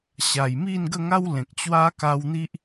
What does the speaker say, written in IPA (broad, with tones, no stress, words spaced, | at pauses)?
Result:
ɕa˨˩jmi˥˧nɡə˥˧ŋa˦w lẽ˨k̚t͡ɕwa˦ ka˧wn̪i˦ʔ